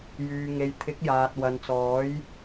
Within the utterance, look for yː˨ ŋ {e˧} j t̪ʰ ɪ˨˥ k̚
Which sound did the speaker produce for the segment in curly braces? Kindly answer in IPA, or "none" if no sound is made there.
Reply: e˨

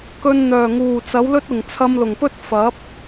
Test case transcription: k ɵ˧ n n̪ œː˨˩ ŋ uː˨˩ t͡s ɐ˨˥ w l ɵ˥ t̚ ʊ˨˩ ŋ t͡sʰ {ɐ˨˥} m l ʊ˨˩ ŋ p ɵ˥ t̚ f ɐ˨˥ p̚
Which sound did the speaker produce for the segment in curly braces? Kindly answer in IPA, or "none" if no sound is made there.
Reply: ɐ˧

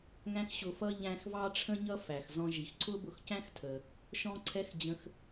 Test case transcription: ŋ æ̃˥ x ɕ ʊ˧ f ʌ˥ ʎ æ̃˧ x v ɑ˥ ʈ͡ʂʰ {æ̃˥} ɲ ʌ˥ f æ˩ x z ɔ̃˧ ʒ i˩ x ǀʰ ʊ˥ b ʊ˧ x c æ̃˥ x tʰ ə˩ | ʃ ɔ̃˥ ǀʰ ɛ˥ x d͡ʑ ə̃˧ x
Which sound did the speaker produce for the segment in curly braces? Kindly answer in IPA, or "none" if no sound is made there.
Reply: ə̃˥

